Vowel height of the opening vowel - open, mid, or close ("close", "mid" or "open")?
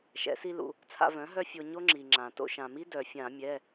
mid